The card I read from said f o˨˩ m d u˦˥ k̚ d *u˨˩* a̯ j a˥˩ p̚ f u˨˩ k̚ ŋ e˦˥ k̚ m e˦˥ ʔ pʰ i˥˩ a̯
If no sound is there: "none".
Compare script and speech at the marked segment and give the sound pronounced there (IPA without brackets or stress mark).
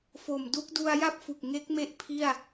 u˧